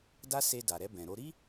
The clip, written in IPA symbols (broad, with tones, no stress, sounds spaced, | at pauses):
d a˦ s e˧ d a˨ ɾ ɛ˧ b ɛ̃˨ ɾ o˧ ɾ i˦